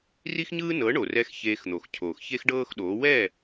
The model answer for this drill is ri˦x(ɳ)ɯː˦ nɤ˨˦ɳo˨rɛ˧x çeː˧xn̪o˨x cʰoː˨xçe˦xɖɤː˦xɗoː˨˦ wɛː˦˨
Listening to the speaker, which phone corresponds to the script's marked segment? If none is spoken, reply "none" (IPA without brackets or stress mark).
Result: ɲ